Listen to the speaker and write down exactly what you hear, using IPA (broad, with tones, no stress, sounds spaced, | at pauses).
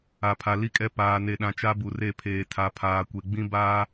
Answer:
a˨ pʰ a˨ l i˦ kʼ ɛ˦ p aː˨ n e˨ ɗ ã˨ t͡ʃ a˦ b u˨ r e˦˨ pʰ eː˨ tʰ a˨ pʰ aː˨ kʷ e˨ ɡ͡b ĩ˦ b aː˦